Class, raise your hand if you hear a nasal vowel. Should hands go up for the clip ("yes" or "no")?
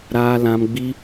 yes